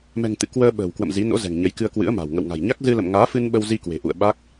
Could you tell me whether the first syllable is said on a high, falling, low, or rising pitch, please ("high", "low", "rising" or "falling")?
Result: low